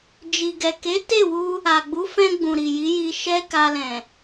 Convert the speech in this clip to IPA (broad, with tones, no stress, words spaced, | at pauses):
d͡ʒi˨ɡɛ˨ke˨˦ te˦˨wu˧ | a˨ɡ͡bu˨˦fɛ̃˧ɡ͡bũ˨ ɾi˨ji˨˦ji˧ ʃɛ˦ka˧lɛ̃˨